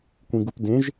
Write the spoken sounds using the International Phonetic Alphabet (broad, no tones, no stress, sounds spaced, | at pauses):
kʷ ĩ ɡ u p d ẽ ʒ